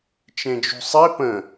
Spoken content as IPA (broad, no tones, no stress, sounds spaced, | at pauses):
t͡ʃ ẽ d͡ʒ ṳ sˤ i p ə̃